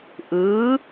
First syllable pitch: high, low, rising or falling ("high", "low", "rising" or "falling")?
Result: rising